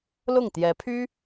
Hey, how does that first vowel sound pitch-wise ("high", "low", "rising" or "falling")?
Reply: falling